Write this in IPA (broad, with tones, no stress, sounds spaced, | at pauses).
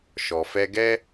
ʃ ɔ˨ f ɛ˧ ɡ ɛ˦